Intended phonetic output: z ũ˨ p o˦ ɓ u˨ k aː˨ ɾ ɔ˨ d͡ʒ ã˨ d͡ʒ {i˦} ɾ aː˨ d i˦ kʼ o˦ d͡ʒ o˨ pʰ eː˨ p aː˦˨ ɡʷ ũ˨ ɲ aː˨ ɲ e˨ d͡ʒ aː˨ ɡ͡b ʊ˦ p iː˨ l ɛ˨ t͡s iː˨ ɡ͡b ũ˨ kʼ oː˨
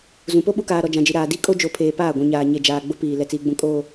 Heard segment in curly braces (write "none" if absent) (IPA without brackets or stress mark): i˨